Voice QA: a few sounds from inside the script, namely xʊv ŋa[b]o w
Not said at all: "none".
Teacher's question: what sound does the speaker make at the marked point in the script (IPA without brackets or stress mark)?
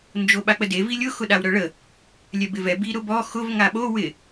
ɓ